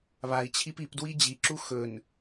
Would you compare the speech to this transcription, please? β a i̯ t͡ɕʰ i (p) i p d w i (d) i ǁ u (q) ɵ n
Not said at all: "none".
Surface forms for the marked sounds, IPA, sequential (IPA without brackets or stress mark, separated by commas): p, d͡ʑ, x